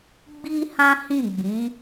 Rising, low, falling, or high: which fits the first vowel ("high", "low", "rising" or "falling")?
high